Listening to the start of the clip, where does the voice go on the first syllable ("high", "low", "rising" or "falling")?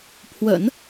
low